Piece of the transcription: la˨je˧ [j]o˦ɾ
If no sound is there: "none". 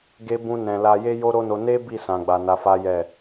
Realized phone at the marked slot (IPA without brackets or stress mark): j